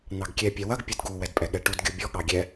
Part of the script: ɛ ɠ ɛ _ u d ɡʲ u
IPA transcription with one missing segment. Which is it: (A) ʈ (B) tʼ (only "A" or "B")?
A